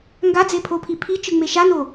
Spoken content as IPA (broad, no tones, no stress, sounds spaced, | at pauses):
ŋ ɡ a d͡z e pʰ o pʰ i pʰ i t͡ʃ ɯ ŋ͡m e ʃ a n o